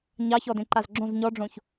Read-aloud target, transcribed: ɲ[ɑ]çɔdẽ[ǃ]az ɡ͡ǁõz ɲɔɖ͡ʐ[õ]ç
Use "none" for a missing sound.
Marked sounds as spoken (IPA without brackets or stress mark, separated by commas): ɑ, ǃ, õ